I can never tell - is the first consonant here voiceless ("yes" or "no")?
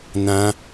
no